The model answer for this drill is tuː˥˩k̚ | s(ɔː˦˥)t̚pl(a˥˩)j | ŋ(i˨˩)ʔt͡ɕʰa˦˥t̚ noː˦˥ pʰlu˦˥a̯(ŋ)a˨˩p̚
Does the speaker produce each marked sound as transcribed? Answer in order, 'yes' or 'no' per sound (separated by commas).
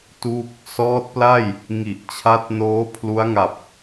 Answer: yes, yes, yes, yes